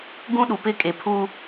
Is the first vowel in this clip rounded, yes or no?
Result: yes